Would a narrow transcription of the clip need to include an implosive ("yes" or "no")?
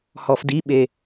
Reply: yes